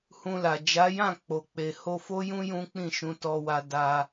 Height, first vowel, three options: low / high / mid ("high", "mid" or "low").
high